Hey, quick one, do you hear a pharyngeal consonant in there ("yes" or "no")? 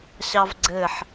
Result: yes